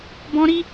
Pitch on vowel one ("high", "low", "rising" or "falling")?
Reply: high